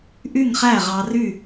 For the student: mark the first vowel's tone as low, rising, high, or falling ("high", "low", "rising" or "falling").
falling